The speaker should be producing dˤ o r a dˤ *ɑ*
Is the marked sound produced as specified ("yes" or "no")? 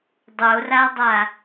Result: no